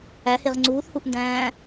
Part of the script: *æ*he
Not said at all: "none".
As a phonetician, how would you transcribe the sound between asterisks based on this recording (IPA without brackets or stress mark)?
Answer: æ